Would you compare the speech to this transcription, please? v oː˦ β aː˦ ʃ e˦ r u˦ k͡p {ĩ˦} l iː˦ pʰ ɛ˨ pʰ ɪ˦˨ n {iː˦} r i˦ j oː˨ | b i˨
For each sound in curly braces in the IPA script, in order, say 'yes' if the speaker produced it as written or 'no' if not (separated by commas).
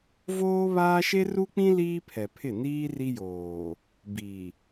yes, yes